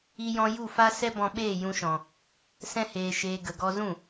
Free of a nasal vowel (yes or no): no